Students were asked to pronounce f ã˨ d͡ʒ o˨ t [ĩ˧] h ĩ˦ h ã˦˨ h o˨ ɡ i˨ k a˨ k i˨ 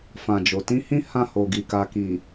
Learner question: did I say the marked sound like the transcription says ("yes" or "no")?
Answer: yes